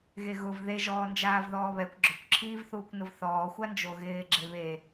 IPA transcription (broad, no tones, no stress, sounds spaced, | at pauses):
ɣ e ɣ ʊ v ð e ʒ ɔː n d͡ʒ aː v ð ɔː β ɛ kʷ ɡ͡ǁ ʊ kʷ ǁʰ iː v θ uː kʷ n ʊ v θ ɔː xʷ a n d͡ʒ o ɣ ɪː ɡ͡ǁ e β e